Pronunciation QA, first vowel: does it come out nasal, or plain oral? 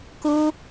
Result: oral